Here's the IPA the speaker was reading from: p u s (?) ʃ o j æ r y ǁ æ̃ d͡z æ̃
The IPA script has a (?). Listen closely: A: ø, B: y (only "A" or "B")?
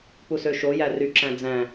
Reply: A